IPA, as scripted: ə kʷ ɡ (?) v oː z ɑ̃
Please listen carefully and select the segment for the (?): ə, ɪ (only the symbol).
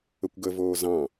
ə